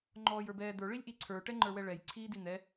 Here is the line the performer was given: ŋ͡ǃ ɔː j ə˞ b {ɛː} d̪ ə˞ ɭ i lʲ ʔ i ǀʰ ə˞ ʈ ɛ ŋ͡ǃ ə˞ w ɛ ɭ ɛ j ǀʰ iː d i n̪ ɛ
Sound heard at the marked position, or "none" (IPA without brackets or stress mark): ɛː